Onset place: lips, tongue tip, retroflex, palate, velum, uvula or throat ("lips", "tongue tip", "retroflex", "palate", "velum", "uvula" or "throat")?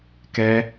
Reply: velum